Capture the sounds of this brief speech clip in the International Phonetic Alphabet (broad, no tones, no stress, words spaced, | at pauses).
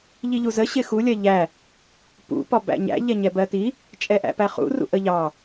ʎiʎuzə ɕɪxu lʲɜʎæ | pṵ pɒbæ̰ɲæ̰ ʎɛɲɛbɜti | t͡ʃʼɛʔæ̰pæχṵ rṵʔəʎɑ